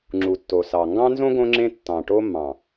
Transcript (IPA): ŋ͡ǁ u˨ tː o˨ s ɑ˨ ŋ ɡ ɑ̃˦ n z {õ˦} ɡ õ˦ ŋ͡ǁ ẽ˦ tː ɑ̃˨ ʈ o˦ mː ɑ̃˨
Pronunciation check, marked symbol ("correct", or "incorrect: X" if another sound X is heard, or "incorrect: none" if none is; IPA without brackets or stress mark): correct